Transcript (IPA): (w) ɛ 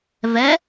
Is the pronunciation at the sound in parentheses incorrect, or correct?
incorrect